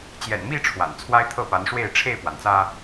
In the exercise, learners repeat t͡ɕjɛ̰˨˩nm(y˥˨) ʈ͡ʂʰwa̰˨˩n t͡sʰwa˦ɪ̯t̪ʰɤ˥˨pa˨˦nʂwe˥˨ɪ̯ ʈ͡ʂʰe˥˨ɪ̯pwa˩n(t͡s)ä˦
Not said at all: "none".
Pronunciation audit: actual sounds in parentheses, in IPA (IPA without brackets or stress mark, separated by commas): i˥˨, t͡s